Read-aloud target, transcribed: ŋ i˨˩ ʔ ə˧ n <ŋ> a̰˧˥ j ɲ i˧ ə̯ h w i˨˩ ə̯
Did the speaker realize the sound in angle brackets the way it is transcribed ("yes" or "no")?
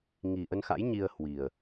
no